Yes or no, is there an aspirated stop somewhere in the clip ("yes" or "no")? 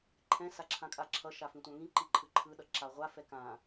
yes